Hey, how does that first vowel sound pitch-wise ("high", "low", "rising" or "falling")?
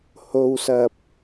low